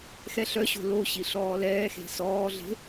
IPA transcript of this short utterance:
x ɛ ɬ œ ɕ o̤ l o ɕ i ɬ ɔː l ɛː x e̤ s ɔː ɮ e̤

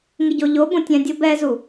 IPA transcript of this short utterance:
ŋ ɪ ɟ o ʎ o b õ tʲ ɛ̃ dʲ ʊ b ɛ z u

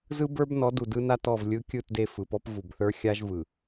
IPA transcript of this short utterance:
z ɯ˦ b ə˞˦ b n ɔ˨˦ d u˨ d ɯ˦ n a˦ t ɔ˦˨ v lʲ ɯ˦ kʲ ɯ˦˨ t d e˦˨ f ɯ˨ p ɔ˦ p v u˨ b θ ə˞˦ xʲ a˦ ʒ v ɯ˨

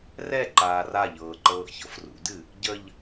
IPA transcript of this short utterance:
r ɛ ǃ aː r a ʎ ɤː ǃ ɤː ʔ ç ɤ f r ṵ d ɨ | ɟ ə ʎ

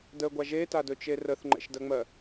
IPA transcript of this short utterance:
d ə ɡʷ a ʒ e t a d ɵ t͡ʃ e r ə θ ŋ͡ǃ ɛ̰ ʃ d ɜ ŋ͡m ɜ

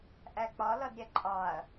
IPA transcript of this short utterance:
ʔ æ k͡p ɒ l ʌ d ɾʲ ɛ ǃʼ ɑ ɐ̯

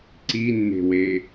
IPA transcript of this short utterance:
ǀ i nː e̤ w e

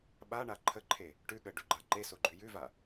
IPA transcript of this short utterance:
ɓ a ɳ a ǃʰ ə ǃʰ e | ʈ ʉ ɠ ə ɖ ʉ ɡ͡ǃ a ǃ e s o ɡ͡ǃ ʉ j ʉ v a

